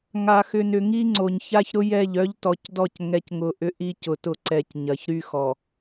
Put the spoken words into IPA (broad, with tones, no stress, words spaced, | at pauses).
ŋa˨xʏ˨nʏ˨ ŋi˦ŋ͡ǀo˨ɲ ça˦çɾʊ˦jɛ˦˨ʎ œ˦ʎtɔ˨cdɔ˦˨c ŋɛ˦cŋʊ˦ ʔʏ˦ʔi˦cʊ˨tʊ˦˨ ǀɛ˨c ɲɐ˨çɾy˦ xɔ˨